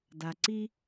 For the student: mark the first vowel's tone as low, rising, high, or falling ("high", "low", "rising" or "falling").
low